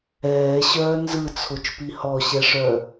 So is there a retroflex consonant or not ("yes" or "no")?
yes